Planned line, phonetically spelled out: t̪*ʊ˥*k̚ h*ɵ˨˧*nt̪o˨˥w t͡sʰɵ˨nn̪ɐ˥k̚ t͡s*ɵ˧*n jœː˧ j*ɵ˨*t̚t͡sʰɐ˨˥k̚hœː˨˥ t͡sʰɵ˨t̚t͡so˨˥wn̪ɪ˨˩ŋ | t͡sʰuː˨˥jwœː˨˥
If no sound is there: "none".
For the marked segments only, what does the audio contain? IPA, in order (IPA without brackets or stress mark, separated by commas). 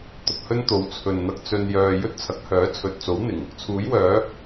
ʊ˨, ɵ˥, ɵ˧, ɵ˥